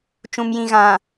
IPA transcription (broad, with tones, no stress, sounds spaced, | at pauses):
t͡ʃ ũ˨ m j ĩ˨ ɣ ã˨